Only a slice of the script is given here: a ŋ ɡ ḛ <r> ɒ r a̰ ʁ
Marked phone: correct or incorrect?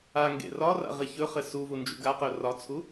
correct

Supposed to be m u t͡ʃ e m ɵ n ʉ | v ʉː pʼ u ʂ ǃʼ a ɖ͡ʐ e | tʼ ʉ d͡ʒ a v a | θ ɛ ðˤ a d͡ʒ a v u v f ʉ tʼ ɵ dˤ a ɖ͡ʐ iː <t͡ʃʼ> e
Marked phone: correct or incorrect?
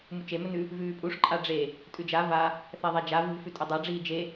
incorrect: d͡ʒ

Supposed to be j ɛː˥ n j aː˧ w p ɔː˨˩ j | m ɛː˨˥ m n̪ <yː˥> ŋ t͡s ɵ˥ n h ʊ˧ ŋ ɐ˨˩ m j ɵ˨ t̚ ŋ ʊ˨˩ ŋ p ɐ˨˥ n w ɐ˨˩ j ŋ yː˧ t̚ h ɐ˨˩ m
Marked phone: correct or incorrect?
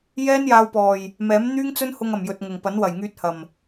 correct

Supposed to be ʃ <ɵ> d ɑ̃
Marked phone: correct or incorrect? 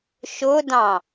incorrect: ʊ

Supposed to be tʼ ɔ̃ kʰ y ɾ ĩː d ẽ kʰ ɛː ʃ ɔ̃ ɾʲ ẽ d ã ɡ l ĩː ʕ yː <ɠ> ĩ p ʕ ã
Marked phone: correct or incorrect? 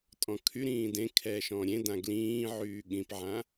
correct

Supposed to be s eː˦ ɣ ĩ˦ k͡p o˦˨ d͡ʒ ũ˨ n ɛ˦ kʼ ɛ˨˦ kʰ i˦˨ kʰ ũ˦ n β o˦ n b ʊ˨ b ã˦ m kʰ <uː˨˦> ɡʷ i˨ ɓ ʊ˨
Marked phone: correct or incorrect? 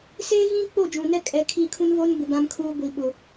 incorrect: uː˦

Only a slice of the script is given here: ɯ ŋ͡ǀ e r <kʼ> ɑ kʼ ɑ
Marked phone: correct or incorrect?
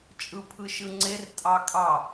incorrect: tʼ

